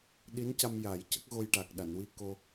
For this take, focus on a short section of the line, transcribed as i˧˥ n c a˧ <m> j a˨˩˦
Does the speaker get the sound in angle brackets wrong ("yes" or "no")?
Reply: no